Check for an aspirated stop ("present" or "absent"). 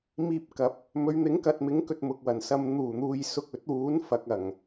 absent